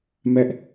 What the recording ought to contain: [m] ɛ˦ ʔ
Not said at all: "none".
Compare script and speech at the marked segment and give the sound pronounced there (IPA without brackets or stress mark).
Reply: m